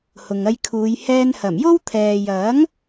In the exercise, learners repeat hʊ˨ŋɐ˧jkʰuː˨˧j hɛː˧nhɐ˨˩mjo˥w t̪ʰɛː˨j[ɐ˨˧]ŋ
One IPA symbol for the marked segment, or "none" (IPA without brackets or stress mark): ɐ˨˥